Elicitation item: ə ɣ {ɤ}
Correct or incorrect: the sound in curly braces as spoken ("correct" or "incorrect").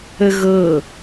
correct